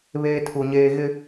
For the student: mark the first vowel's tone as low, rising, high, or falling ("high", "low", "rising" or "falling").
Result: high